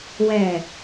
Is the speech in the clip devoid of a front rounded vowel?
yes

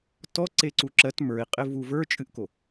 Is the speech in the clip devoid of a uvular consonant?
no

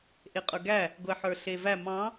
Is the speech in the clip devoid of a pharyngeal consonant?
no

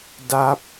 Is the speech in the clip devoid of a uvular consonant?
yes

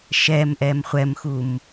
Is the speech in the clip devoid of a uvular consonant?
no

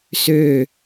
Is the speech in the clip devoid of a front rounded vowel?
no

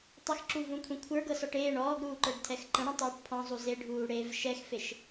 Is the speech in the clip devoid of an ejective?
yes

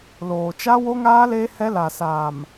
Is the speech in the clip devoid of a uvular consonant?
yes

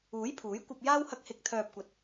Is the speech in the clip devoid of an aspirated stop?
no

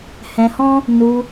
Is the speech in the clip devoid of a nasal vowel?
no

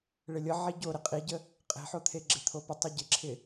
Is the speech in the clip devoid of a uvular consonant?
no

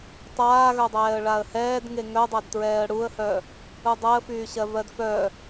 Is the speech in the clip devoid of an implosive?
yes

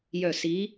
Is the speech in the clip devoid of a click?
yes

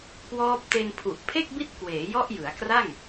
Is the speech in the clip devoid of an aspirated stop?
no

